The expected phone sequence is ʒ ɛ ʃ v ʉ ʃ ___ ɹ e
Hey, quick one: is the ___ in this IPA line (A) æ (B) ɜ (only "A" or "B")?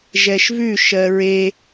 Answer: B